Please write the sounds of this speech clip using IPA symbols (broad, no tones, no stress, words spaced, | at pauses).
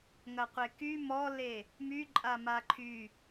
ŋɐqʷeky mɔle | myǃʼa maǃʰy